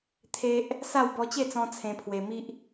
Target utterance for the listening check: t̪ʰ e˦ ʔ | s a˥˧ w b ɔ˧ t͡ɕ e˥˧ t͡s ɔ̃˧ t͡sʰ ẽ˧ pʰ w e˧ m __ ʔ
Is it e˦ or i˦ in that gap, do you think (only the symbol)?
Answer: i˦